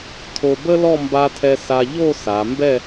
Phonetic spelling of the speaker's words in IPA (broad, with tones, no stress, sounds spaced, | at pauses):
tʰ o˧ b ə˥ l ɔ˥˧ m b a˧ tʰ ɛ˧ s a˧ ʎ o˥˧ s a˩˧ m b ɛ˥˧